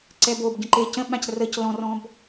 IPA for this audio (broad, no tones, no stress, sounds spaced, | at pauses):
ǀ ɛ b o b ɟ ə̃ ǃ e c ə̃ ɓ ã c r ə c l ɔ̃ r ɔ̃ b